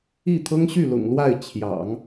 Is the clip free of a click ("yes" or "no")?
yes